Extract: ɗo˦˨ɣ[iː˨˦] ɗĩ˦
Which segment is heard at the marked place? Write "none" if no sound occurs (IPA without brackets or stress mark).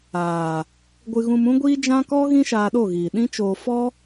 iː˨